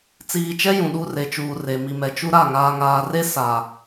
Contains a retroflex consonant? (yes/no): no